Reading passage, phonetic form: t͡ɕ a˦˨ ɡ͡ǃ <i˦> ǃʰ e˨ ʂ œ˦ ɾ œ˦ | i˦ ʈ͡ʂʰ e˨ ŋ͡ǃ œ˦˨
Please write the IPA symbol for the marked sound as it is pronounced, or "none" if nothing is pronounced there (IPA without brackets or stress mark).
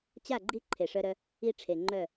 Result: i˦